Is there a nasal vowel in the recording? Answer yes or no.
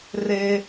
no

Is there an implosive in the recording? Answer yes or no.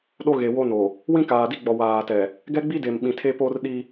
yes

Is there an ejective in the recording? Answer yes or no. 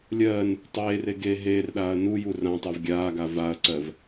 no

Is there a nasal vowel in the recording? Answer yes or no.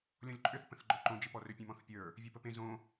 yes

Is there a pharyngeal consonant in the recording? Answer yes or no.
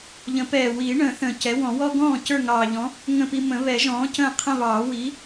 no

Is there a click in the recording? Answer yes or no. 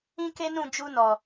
no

